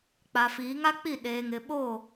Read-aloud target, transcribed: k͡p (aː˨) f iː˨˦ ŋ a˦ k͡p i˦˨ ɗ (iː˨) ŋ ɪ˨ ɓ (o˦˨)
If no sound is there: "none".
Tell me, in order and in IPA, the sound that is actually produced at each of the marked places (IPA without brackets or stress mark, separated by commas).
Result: a˨, eː˨, o˦˨